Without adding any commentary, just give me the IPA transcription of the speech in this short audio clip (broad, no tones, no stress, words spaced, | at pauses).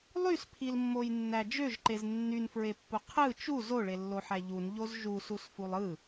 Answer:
lˠyspʰilmːojnːæ d͡ʒøʒǃez nːynfɹepːu qʰɯ t͡ʃu zoɭelːoħæ ʎunʎoz ʒususfulˠ ɯ